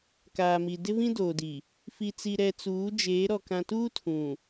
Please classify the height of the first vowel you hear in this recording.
low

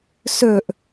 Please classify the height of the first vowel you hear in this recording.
mid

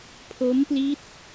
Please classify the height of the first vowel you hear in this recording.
mid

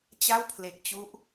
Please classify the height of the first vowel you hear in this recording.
low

